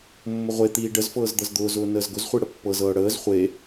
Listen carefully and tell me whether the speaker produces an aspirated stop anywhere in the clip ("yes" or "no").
no